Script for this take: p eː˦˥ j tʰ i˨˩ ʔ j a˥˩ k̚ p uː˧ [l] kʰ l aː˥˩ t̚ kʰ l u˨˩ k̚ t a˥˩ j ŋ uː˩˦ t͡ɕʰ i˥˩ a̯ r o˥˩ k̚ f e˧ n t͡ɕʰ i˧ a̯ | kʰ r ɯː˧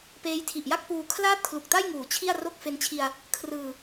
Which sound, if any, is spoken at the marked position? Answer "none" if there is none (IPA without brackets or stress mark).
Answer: none